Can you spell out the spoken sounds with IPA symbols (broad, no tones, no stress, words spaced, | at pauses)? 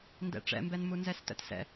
ndɛ̰ʈ͡ʂɛ̰mbɛnmu nzɛstə̰tsɛ̰